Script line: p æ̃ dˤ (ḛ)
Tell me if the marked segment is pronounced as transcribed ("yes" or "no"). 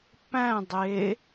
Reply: no